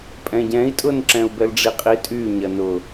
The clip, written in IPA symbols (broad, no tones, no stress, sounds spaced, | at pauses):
pʼ ɛ̃ ɟ ɛ̃ i̯ tʼ ʊ n ǁ ɛ̃ u̯ b ɛ l ɖ͡ʐ i qʼ i tʼ y ɲ ɐ n ʊ